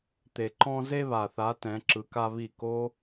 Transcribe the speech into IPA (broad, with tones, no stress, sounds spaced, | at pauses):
t̪ e˨ ǃ ɔ̃˦ z e˦ β a˨ θ a˨˦ t ɛ̃˨˦ ǁ ɯ˧ k a˦ β i˦˨ k o˧